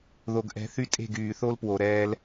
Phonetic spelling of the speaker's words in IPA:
ð o˨ ɡ ʔ ɛ̤˨˦ θ y˦ tʼ e̤˦˨ ɡ yː˨ θ o˦ l p w o˨ ɾ ɛː˦ l

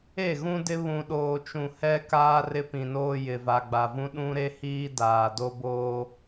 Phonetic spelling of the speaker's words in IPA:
e˦˨ ɣ ũ˦ d ɪ˦ β ũ˨ ɗ oː˨ t͡ʃ ũ˨ h ɛ˦ k aː˦ r ɪ˦ p ĩ˨ n oː˦ j ɪ˨ v a˨ ɡ͡b a˨ v ũ˦ ɗ ũ˦ ɾ e˦ h iː˦ d aː˨ d o˦ b oː˦

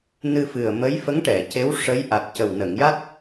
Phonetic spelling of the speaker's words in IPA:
n ɨ˧ f ɨ˨˩ ə̯ m ə˧˥ j f ə˧˥ ŋ ʈ ɛ˨˩˨ c e˧˥ w ʂ ə˧˥ j ʔ a˨˩ t̚ c ə˨˩ w n ə˨˩˨ ŋ j a˦˥ t̚

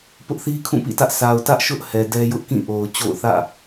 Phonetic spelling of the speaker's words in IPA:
p ʊ˦ ʔ θ i˦ kʰ ũ˦˨ p ḭ˦˨ t ä˦ ʔ s a˨ ʊ̯ t ä˦ ʔ ʃ ʊ˦ ʔ h ɛ˨ d ɛ˦ j ʊ˦ ʔ k ĩ˦˨ ʔ o˨ ʊ̯ t͡ɕ o̰˦˨ ʊ̯ θ ä̰˦˨

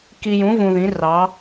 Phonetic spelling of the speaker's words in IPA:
k i˧ j ũ˨˥ v ũ˧ ð ĩ˨˥ r ɑ˨˥

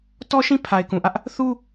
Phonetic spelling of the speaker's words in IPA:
t ɔ˦ ʃ ĩ˦ pʰ a˨ ɪ̯ k ũ˨ ʔ ä˦ ʔ | θ u˦

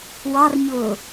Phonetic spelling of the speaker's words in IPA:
w ɑ r ɲ ʊː

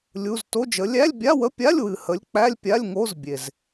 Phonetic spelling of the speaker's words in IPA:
lʲ u˧˥˧ z t o˧˥˧ d͡ʒ ə˨˥ lʲ æ˧˥˧ lʲ bʲ a˧˥˧ w ə˧˥˧ pʲ a˧˥˧ lʲ w ɨ˨ h ə˨˥ lʲ k͡p æ˧˥˧ lʲ pʲ a˧˥˧ lʲ ŋ o˧˥˧ z bʲ e˨ z

